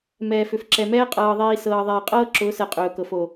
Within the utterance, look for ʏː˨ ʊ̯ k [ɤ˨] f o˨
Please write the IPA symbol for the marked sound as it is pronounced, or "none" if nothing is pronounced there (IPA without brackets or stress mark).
ɤ˨